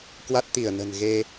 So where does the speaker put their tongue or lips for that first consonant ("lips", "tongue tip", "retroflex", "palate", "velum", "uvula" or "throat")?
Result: velum